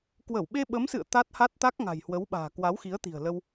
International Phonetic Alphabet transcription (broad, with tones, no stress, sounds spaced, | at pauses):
k w ə˧˩ w ɓ e˧ ɓ ə˨˦ m s ɨ̰˧˨ ə̯ t̪ a˦˥ t̚ h a˦˥ t̚ t̪ a˦˥ k̚ ŋ a̤˨˩ j h w ə˨˦ w ɓ a̤ː˨˩ k w a˨˦ w x i˨˦ ə̯ t̪ i̤˨˩ ə̯ l ə˧ w